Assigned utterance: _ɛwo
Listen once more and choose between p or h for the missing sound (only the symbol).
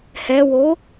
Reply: h